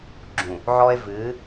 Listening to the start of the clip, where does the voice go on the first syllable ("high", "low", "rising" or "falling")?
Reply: low